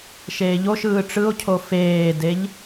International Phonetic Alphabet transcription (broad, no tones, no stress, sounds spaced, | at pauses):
ʃ eː ʎ o ʃ ɯː ʈ͡ʂ ɯ o̯ cʰ o f eː d e ʎ